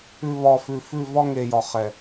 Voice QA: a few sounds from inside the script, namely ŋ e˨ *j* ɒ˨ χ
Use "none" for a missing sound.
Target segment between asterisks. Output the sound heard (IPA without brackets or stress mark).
j